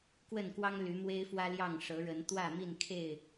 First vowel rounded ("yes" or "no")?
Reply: no